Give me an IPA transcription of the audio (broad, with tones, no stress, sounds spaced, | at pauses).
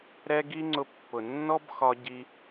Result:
ɾ ɛ˦ ɡ i˦ ŋ͡ǀ ʊ˧ pː ʊ˨ nː ɔ˦ b x ɒ˧ ɟ i˧